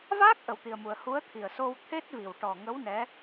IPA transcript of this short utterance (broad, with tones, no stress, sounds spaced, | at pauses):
v aː˦˥ k̚ ʔ ə˧ w t̪ i˧ ə̯ m u˧ ə̯ h u˧˥ ə̯ t̪ʰ i˨˩ ə̯ s o˧ w t̪ʰ e˦˥ t̚ v i˨˩ w ʈ ɔ˨˩ ŋ ə˧˥ w n ɛ˧˥